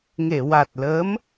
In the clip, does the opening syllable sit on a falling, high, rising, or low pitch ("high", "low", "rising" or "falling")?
low